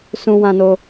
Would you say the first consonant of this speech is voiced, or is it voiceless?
voiceless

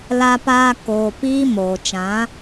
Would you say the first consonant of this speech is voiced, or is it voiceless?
voiced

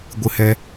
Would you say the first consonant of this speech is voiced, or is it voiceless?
voiced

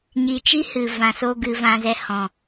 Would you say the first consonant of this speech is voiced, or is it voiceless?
voiced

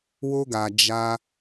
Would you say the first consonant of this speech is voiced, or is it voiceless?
voiced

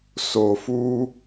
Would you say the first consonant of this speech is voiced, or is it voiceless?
voiceless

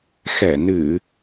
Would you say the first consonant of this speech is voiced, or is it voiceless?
voiceless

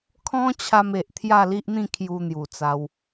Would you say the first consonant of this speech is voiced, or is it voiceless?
voiceless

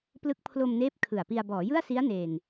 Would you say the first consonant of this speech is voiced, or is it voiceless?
voiceless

